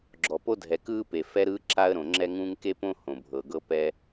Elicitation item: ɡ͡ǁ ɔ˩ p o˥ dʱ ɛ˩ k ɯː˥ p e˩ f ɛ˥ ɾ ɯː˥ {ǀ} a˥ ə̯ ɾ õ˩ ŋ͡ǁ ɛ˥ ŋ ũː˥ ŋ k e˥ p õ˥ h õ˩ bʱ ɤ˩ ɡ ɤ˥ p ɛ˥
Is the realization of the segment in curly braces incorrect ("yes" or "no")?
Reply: yes